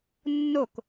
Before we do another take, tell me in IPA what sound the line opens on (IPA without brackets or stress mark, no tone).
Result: nː